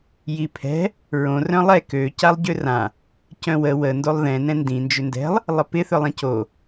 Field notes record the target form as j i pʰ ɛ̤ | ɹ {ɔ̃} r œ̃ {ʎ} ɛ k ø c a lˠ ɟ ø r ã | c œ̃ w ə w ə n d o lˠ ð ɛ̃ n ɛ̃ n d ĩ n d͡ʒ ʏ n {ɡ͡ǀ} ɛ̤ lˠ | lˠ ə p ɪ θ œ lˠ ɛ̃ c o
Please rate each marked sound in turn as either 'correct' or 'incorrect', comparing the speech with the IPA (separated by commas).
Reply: incorrect, incorrect, incorrect